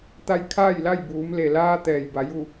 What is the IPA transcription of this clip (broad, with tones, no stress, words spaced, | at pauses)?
t̪a˧j kʰaː˥˨jla˥˨j buː˩˧mle˩laː˧ t̪ɛː˩j ba˩˧ju˥˨